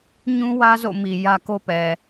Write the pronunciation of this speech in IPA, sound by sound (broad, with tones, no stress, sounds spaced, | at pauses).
ɲ ũ˦ w ä˦ z o̰˦˨ m i˨ j ä˦ k o˦ p ɛ˨